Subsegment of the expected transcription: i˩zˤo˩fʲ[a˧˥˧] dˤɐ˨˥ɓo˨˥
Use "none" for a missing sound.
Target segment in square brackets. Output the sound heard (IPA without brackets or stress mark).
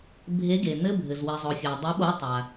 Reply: a˩